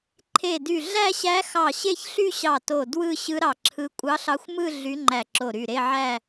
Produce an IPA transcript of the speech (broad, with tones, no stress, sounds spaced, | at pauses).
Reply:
ǃʰ e˧˩ d y˧˩ ɮ æ˥˧ ɕ æ˧˥ x ɑ˧˩ ɕ e˥˧ ç ɬ y˥˧ ɕ ɑ˧˩ t o˧˩ d w ɯ˥˧ ɕ ɯ˧˥ ɾ ɑ˧˩ ǁʰ ɯ˧˥ kʷʼ ɑ˧˥ ɬ ɑ˧˥ xʷ m ɯ˥˧ ɮ y˧˥ ŋ͡ǃ æ˧˩ ǁ o˧˩ ɾ y˧˩ ɾ e˥˧ ʕ æ˥˧